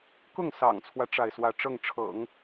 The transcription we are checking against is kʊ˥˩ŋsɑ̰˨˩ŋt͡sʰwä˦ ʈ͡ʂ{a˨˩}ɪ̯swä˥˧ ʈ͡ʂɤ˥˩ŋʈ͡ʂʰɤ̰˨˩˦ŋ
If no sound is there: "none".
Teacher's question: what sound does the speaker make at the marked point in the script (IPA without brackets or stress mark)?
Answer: a˥˧